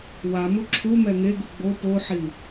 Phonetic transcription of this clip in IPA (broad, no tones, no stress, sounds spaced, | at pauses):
w a m u ǁʰ u m ɛ ŋ e ɡ u ɡ͡b o p o ħ i